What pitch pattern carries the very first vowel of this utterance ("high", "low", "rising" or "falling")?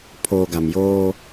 low